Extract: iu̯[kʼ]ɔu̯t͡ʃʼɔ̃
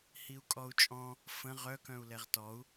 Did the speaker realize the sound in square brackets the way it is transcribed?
yes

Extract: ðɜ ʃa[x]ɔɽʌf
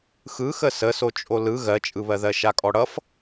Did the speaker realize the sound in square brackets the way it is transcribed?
no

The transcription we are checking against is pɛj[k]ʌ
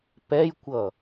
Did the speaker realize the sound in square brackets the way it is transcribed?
no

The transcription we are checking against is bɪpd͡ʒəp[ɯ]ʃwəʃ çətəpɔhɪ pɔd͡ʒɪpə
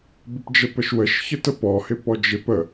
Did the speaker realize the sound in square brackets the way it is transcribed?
no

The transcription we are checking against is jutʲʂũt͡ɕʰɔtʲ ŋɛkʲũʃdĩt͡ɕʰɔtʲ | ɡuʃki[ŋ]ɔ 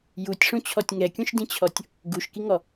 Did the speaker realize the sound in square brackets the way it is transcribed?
yes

